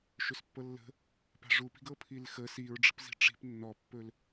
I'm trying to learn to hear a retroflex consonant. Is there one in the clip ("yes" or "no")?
yes